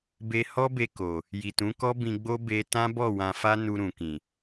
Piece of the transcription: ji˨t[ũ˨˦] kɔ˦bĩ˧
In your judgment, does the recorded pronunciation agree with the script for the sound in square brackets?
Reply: yes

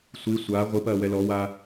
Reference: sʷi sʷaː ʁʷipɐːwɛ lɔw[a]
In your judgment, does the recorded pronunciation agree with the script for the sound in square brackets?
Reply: no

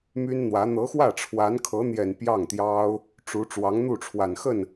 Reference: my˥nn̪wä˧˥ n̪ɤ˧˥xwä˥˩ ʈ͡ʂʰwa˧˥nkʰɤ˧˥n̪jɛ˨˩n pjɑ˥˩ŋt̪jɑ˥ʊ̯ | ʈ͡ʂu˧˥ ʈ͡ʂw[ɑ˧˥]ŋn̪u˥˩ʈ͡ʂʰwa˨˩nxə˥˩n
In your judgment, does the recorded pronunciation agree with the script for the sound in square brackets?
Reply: yes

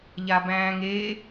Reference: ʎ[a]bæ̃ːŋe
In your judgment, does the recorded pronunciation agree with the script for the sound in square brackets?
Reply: yes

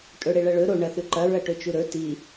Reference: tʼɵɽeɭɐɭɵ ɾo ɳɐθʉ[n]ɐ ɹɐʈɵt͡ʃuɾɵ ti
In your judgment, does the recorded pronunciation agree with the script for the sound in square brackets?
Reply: no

